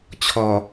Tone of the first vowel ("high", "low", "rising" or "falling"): low